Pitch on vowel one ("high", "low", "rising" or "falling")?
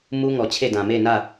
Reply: high